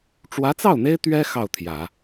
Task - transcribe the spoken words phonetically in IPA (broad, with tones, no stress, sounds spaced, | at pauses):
ʈ͡ʂ w ä˧˥ t͡s ɑ˥˩ ʊ̯ n̪ e˥ ɪ̯ t̪ ɥ ɛ˥ x ɑ˥˩ ʊ̯ t̪ʰ j ä˨˩˦